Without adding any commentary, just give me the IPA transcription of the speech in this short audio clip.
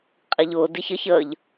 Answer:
qʼiʎʊː diç əç əːʎ

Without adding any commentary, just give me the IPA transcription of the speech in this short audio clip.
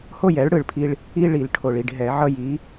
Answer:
ho˥˩jɛ˩˥ɭ ɽɯ˨˩ɭpʰi˦ɭ | i˦ ɭi˨˩˦l ʈʰo˨˩ɭi˥˩ɖ ɦɛ˨˩˦ʕʌ˦ ji˩˥

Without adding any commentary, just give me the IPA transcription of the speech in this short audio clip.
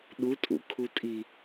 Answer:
ɗutʼṵkʰutʼi

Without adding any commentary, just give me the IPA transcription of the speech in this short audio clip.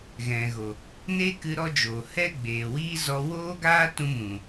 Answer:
ɣɛ̃˨ɣo˨ | neː˦kɨ˧ ɾɔ˦d͡ʒoː˨ hɛ˦ɡ͡beː˨wiː˦ zɔ˧ woː˦ɡaː˦tũ˧mũ˨

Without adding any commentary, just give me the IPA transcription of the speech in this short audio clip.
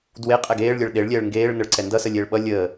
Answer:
dwe qʼɛɡeːɭ lʲɜɭɗeɭlʲɛːɭ ŋɡeːɭnəɭ ǀɛndʌsəlʲeːɭ ɓʌ lʲəː

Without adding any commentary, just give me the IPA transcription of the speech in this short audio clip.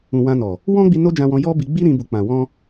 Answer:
ũ˨wã˧nɔ˨ | wɔ̃˦ɡ͡bi˧ no˦d͡ʒã˧wɔ̃˧ jɔ˦bi˧ ɡ͡bi˦ɾĩ˧ bu˨k͡pã˨wɔ̃˧

